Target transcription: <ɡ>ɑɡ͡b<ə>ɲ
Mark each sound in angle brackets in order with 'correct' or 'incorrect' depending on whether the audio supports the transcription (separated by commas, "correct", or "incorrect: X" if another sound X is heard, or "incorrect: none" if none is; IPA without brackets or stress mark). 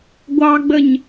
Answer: incorrect: ɡʷ, correct